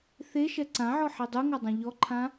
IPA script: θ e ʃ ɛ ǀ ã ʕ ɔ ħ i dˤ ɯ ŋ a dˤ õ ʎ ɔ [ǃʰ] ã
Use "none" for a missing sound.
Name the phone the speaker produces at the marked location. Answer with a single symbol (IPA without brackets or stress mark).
ǃʰ